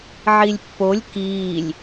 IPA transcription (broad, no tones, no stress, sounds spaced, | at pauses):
ʕ i lʲ pː o lʲ k iː lʲ